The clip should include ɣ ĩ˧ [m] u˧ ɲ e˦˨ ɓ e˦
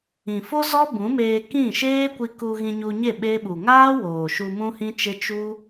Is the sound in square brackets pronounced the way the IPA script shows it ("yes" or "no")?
no